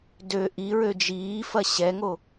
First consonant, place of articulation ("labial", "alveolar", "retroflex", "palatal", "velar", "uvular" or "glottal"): alveolar